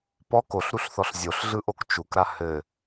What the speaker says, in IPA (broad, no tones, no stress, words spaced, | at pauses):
pɔk oɬɾuɬθɔɬ zʲoɬɮɯʔok t͡ʃukɾa hɘ